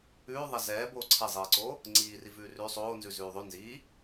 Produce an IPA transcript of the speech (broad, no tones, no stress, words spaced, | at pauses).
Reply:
ʉːðˤɛ zɛːboː ǀʰɛzˤiːǀoː | ŋ͡ǀiːri vʉːrʉ sˤoːnzʉ zʉːðˤʉ nziː